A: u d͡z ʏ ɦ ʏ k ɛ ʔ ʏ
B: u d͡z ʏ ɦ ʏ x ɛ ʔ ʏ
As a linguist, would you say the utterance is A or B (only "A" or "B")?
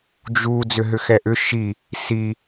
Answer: B